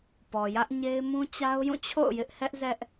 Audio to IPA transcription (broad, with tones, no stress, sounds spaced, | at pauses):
p ɔ˨ j ä˦ ʔ ɲ e˦ ɪ̯ m ũ˦ t͡ɕ a˦ ʊ̯ j ũ˦˨ t͡ɕʰ o̰˦˨ ʊ̯ j ɪ˦ ʔ h ɛ˦ ʔ z ɛ˦ ʔ